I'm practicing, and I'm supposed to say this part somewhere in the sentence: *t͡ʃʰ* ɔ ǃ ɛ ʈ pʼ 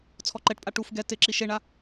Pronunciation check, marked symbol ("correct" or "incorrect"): incorrect